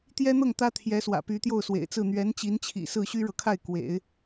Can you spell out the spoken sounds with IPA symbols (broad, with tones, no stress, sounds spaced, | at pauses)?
t̪ j ɛ˥ n̪ ɤ˥˩ ŋ t̪ ä˥ t̪ʰ j ɛ˧˥ s w ä̰˨˩ p y˧˥ t̪ j o˥˩ ʊ̯ s w ḛ˨˩ ɪ̯ t͡s ɹ̩˥˩ n̪ ɥ ɛ˧˥ n t͡ɕ i˧˥ n t͡ɕʰ ḭ˨˩ s ɹ̩˥˩ ɕ y˥ ɻ ɤ˨ kʰ a˥˩ ɪ̯ k w ḛ˨˩˦ ɪ̯